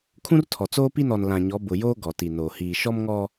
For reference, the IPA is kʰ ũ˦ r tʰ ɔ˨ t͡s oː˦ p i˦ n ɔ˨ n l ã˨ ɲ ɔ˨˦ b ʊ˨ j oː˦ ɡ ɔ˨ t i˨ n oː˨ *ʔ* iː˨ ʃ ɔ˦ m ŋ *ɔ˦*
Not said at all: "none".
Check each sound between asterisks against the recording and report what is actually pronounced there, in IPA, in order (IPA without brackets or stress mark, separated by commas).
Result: h, ɔ˦